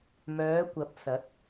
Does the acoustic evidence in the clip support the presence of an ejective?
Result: no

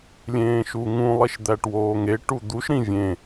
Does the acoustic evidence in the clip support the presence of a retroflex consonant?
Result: yes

